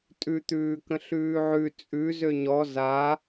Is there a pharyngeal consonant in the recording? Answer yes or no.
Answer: yes